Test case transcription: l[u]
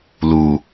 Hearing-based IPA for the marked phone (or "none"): u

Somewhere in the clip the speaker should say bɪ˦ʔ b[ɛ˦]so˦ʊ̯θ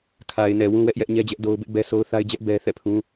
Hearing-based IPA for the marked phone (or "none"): ɛ˦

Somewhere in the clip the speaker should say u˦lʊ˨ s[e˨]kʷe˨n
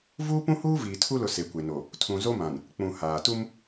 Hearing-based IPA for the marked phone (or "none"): e˨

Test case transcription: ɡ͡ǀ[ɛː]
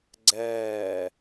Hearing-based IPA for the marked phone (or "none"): ɛː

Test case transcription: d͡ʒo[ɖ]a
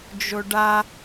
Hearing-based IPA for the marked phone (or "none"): ɖ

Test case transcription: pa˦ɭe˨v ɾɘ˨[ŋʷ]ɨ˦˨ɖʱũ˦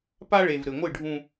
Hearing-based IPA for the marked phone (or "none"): ŋʷ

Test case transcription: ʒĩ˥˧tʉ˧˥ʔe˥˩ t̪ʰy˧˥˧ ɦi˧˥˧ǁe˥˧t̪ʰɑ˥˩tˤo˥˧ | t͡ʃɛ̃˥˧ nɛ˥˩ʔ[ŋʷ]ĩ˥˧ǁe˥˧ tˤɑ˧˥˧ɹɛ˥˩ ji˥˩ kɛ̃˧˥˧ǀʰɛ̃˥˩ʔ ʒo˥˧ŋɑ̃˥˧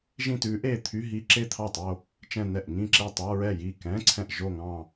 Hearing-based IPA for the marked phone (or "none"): ŋ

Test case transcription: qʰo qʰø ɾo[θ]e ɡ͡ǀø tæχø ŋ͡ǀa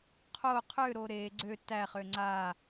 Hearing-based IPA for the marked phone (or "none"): ɾ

